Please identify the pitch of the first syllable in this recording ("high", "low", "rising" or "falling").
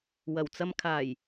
low